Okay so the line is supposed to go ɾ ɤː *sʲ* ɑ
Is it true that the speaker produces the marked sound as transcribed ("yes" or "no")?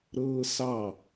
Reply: no